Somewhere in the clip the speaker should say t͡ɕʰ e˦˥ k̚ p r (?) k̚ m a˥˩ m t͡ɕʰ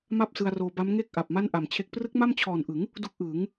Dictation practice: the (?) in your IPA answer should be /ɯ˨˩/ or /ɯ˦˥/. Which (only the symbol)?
ɯ˦˥